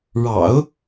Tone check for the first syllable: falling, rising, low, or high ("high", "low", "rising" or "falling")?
low